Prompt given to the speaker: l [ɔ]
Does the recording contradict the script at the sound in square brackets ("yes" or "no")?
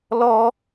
no